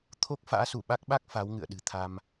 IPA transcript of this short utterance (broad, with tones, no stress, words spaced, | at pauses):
t̪ʰo˦˥k̚ fa̰ː˧˥su˧˩ɓa˦˥k̚ɓa˦˥k̚ fa˨˦wŋɨ̰˧˨ə̯ ɗɨ̤˨˩ t̪ʰa˧m